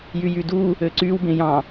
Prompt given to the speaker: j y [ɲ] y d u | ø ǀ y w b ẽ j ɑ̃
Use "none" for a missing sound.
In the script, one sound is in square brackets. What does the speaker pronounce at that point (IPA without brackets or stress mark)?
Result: j